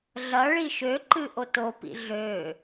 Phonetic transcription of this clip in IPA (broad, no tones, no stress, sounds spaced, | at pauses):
ɮ ɐ ɭ i ʃ ø ǃ ɨ ʔ o t o p ḭ ɮ ø